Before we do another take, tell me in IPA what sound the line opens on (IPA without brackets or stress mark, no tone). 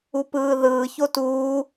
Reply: u